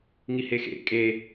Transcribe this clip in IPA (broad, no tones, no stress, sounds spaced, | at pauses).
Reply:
ŋ i h e x ḛ kʼ e